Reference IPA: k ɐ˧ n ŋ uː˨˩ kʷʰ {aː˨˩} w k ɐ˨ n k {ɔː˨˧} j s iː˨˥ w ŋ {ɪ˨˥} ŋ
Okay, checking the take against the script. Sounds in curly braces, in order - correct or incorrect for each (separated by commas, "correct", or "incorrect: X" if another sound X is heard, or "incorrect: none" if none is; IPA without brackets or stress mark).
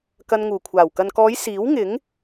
correct, correct, correct